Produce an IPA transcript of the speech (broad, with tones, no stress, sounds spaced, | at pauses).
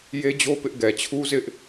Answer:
j e˦ d͡ʑ o˦ p ɪ˦ ʔ ɡ ɛ˨ t͡ɕʰ u˦ z ɪ˦ ʔ